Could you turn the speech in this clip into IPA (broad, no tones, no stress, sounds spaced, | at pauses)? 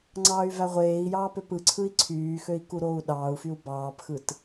ŋ͡ǀ ɑː y̯ v æ ʁʷ eː i̯ j ɑː p ø p ɯ ǀʰ ɯ i̯ ǀʰ yː x ø i̯ k u ɾ oː u̯ ɗ ɑː u̯ f y u̯ b ɑː p x ɯ t